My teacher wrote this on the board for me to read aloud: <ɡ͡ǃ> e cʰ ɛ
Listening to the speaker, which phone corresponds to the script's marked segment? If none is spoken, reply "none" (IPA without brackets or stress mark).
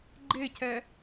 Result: ɡ͡ǃ